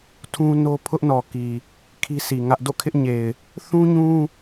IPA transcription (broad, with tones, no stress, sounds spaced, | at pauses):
tʰ ũ˦ n o˦ pʰ ʊ˦ ʔ n ɔ˨ k i˨ | kʰ i˦ sʰ i˨ ŋ ä˦ ʔ d o̰˦˨ kʰ ɪ˦ ʔ ɲ e˨ ɪ̯ | θ ũ˦ ɲ ũ˦